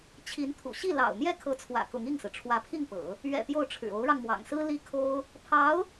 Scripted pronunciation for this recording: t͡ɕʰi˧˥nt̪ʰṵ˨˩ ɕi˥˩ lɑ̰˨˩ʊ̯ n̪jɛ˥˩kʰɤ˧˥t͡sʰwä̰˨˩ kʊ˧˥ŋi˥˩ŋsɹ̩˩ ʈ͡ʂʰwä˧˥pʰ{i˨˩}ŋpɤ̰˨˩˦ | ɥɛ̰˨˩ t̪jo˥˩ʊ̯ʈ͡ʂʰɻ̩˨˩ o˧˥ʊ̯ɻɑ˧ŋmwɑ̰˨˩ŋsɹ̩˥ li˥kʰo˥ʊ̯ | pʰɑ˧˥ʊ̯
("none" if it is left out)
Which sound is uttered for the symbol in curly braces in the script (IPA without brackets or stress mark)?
i˥˩